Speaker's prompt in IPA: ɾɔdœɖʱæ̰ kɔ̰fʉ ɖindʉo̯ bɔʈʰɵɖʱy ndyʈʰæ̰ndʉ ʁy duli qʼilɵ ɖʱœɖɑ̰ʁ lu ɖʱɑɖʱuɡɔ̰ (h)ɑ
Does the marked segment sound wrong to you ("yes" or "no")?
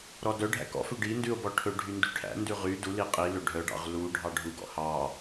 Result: no